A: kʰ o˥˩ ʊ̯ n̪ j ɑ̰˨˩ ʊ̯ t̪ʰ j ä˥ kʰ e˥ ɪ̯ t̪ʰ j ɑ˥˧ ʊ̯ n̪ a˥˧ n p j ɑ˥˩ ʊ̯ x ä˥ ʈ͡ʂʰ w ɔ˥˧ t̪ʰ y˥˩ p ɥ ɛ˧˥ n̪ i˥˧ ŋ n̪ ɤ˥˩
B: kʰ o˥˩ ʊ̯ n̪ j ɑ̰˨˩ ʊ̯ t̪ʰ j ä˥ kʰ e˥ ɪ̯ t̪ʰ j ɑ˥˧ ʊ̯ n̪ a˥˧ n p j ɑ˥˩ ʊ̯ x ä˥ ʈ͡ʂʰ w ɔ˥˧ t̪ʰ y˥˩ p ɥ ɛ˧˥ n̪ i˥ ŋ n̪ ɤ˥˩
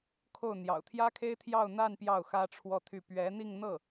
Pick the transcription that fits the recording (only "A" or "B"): A